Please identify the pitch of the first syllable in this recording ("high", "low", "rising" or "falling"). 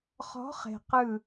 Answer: rising